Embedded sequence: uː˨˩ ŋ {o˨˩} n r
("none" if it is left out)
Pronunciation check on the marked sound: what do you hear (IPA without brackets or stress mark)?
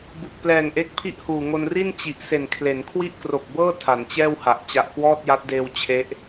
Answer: o˧